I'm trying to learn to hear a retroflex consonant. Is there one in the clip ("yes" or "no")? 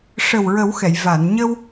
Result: yes